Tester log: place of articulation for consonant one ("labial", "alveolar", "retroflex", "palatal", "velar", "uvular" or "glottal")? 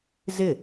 alveolar